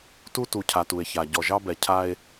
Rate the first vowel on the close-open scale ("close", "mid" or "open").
close